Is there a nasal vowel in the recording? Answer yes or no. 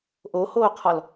no